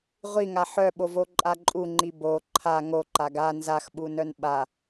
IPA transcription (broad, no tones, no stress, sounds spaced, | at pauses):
ʁʷ i ŋ a ħ œ ɓ o v o ǃʼ a ǃʼ u ŋ͡ǃ i b o ǃʰ a ŋ o ǃ a ɡ a n z a x ɓ u n œ n ɓ a